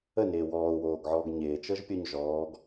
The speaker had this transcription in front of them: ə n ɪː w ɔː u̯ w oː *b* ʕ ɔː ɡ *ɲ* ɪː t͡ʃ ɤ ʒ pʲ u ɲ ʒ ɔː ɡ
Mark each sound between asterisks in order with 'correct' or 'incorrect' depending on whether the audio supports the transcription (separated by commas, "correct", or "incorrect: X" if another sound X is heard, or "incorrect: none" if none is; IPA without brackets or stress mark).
incorrect: ɡ, correct